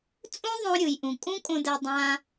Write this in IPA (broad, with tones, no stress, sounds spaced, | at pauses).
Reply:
t͡sʼ ũ˥ ðˤ õ˧ ɾʲ ɯ˩ j ʔ ũ˩ kʼ ũ˥ kʼ õ˧ d ɛ˧ dˤ ã˧